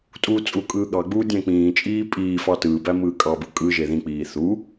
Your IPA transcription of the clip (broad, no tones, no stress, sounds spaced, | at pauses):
tʼ uː t͡sʼ u kʼ ɯː ɠ ɑ ɡ͡b uː dʲ æ̃ k͡p ĩː t͡ʃʼ iː pʼ iː f ɑ t ɯː b æ m ɯː kʼ ɑ b ɯ kʼ ɯ ʒ e ð ĩ k͡p iː θ u